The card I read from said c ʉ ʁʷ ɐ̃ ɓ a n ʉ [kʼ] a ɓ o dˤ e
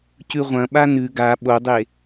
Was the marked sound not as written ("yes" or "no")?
yes